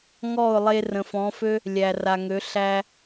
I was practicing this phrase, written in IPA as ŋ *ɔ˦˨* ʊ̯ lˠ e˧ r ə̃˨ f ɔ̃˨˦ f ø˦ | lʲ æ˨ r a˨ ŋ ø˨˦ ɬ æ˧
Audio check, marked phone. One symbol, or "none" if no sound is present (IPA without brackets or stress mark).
ɔ˦˨